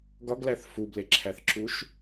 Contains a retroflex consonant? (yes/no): no